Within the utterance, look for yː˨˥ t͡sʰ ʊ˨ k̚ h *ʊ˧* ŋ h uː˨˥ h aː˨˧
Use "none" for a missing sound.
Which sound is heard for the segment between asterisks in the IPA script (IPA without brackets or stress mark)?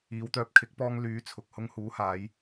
ʊ˧